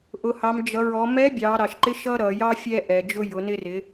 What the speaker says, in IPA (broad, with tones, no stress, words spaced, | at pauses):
ʔʊ˩hɑ˩˧md͡ʒʌ˩˧ ɹɔ˩˧mɛ˧˥bʲɑ˩˧ ɾɑ˩ʃǃɪ˧˥ ʃʌ˥ɾʌ˩˧jɑ˥ fʲɛ˧ʔɛ˩d͡ʒʊ˧ jʊ˩˧nɪ˧rɪ˩˧